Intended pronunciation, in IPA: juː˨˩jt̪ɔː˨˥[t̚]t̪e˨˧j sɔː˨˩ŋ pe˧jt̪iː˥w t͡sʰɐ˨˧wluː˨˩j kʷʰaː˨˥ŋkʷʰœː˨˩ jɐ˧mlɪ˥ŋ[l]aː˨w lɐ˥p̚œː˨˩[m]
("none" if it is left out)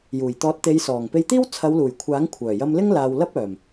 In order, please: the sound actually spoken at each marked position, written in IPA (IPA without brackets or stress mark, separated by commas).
t̚, l, m